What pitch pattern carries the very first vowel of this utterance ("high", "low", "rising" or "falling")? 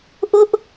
high